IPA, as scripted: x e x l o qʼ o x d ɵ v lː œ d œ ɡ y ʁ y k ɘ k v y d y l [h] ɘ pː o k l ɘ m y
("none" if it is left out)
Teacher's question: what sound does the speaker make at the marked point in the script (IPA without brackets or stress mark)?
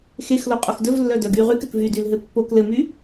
ɦ